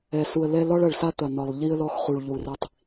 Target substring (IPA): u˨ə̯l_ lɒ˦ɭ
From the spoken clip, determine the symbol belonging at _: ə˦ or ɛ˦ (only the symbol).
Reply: ɛ˦